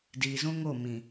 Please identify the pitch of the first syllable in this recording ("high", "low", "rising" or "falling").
low